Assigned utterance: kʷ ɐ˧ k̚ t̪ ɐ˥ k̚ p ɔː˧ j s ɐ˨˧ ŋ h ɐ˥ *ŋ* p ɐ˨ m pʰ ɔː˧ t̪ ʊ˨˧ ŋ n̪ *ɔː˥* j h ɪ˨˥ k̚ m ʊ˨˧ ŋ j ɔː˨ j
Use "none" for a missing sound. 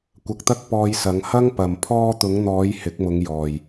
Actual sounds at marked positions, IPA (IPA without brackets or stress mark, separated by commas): ŋ, ɔː˨˧